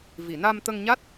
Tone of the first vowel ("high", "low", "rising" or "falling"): low